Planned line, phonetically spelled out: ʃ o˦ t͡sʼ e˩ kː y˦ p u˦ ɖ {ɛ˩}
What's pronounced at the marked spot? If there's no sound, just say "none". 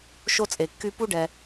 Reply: ɛ˩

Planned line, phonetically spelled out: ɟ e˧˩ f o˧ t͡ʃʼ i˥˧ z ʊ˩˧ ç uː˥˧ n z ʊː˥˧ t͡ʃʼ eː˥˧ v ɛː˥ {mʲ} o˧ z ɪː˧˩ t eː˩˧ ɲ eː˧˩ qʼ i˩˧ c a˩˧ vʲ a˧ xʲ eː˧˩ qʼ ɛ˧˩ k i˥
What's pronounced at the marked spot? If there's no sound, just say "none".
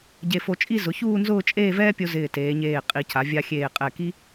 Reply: pʲ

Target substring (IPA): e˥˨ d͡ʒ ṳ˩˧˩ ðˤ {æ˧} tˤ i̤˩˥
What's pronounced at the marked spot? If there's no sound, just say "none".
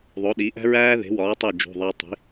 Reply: æ˧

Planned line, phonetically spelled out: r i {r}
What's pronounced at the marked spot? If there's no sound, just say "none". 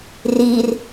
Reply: r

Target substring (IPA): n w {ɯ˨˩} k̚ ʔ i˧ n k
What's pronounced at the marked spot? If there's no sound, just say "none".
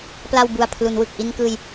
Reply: ɯ˨˩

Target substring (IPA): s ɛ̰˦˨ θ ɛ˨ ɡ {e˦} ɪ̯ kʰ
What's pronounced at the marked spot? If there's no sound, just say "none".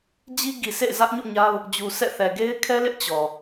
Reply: e˦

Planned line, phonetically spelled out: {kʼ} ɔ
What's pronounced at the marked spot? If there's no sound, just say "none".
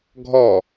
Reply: ɡʱ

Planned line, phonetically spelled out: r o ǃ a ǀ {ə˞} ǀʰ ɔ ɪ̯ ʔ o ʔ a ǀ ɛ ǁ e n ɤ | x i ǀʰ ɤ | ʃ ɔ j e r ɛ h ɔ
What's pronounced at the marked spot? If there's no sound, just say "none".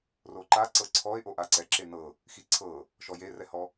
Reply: ɤ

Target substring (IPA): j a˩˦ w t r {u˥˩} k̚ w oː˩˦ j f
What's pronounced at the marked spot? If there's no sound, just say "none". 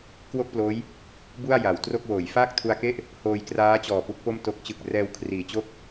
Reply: o˥˩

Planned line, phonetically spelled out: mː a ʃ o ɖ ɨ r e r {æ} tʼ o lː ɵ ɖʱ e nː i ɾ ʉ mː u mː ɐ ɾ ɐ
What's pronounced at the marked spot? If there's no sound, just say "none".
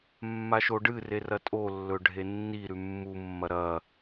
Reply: ɐ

